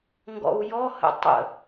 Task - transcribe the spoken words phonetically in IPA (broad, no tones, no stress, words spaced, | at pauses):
ŋɡɔ̰u̯jɔhə̰ tˤə̰